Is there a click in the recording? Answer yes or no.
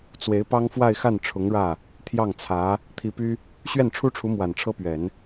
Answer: no